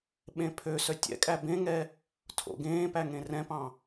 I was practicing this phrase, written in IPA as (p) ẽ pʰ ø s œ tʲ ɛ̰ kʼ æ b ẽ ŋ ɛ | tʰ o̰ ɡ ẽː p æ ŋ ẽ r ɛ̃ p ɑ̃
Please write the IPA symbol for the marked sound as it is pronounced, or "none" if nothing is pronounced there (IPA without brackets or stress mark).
ɓ